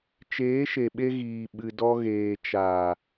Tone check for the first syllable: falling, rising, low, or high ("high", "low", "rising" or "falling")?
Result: rising